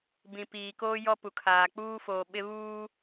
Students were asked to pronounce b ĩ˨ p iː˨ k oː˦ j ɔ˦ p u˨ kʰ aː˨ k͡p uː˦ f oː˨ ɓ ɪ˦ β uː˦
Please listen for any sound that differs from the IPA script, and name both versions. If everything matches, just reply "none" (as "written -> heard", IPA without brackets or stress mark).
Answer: none